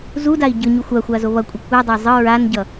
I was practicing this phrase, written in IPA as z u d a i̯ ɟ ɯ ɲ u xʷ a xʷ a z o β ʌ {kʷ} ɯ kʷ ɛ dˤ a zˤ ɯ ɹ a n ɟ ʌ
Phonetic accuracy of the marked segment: incorrect: kʷʼ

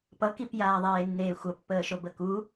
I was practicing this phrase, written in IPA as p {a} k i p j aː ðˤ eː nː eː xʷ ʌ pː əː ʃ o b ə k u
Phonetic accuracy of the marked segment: incorrect: ʌ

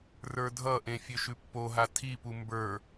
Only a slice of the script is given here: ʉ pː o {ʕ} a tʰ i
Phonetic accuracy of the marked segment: incorrect: ɦ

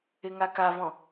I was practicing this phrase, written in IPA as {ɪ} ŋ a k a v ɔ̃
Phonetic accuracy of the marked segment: correct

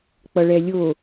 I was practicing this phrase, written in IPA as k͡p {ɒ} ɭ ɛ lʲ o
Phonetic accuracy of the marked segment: incorrect: ʌ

